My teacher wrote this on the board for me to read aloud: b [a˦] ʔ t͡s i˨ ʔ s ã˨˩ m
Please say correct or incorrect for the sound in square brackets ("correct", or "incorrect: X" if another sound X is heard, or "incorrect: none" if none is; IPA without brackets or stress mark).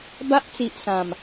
correct